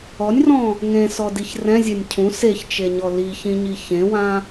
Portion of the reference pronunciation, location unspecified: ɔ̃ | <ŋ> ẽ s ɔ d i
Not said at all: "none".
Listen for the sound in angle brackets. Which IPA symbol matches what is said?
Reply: ŋ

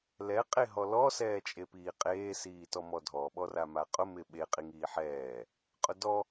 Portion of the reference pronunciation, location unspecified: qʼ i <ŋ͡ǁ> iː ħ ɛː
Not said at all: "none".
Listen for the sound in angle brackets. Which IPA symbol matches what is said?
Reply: ŋ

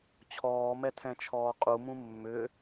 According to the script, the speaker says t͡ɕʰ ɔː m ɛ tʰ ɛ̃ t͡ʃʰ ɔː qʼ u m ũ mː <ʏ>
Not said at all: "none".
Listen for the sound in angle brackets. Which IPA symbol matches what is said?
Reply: ʏ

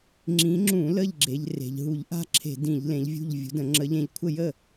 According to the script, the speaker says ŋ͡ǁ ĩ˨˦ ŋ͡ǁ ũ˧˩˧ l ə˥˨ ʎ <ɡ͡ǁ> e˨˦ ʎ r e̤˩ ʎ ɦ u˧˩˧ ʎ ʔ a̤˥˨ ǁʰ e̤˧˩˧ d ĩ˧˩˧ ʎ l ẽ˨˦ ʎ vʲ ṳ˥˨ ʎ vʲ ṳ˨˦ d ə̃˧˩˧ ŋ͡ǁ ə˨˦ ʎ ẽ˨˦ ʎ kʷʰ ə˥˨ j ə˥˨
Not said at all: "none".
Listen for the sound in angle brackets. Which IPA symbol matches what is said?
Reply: ɡ͡ǁ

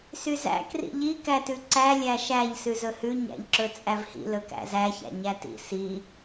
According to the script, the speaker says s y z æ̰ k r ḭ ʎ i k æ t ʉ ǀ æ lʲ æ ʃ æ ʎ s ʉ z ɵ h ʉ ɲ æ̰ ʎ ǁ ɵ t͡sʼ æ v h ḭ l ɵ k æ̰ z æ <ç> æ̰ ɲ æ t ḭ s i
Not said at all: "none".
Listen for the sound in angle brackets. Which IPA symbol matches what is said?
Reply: ç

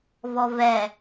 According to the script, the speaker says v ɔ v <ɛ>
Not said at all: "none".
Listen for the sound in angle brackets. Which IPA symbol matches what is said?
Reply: ɛ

